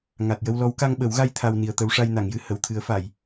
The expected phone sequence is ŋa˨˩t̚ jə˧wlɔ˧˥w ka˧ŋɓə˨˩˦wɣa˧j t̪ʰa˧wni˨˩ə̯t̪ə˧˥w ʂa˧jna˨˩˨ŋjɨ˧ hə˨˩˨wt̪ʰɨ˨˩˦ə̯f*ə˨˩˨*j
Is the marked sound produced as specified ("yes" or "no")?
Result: no